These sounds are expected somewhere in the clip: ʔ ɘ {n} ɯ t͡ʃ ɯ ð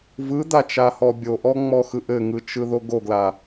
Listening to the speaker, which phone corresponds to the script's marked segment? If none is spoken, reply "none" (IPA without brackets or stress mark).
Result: ŋ